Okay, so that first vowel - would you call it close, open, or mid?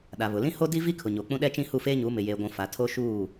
open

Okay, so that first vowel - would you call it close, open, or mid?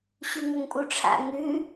close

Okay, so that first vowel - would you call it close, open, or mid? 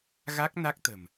open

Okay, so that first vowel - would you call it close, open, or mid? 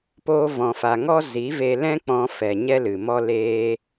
mid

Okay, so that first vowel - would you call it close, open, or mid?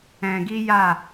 mid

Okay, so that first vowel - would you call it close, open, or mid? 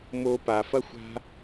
mid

